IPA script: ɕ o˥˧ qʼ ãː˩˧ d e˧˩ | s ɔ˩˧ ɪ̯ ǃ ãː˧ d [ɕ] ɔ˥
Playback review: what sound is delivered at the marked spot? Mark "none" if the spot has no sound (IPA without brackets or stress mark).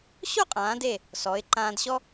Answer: ɕ